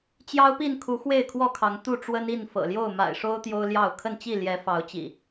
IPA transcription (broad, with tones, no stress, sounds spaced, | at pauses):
t͡ɕ j ɑ˦ ʊ̯ p i˥˨ n kʰ u˨˦ x w e˥˨ ɪ̯ kʰ w ɔ˥˨ kʰ ɑ˨˦ ŋ t̪ u˥˨ ʈ͡ʂ w ə˦ n i˥˨ n f ɤ̰˨˩ l j o˥˨ ʊ̯ m a̰˨˩ ɪ̯ ʂ o˦ ʊ̯ t̪ j o˦ ʊ̯ l j ɑ˥˨ ʊ̯ kʰ ə˥˨ n t͡ɕ i˥˨ l j ɛ˨˦ f ɑ˨˦ ʊ̯ t͡ɕ ḭ˨˩